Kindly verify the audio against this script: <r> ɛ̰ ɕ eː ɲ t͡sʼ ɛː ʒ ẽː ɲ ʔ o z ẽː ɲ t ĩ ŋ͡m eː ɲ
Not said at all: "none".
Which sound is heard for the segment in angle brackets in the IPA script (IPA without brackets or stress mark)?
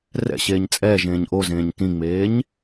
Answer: r